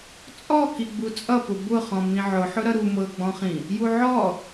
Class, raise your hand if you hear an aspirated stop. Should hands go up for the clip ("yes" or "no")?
no